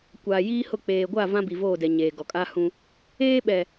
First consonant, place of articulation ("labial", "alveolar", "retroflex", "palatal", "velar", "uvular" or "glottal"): velar